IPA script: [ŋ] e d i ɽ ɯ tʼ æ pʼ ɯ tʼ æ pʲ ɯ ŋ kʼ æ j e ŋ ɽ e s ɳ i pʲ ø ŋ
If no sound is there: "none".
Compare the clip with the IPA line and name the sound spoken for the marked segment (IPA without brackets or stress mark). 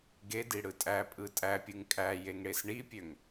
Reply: ɡ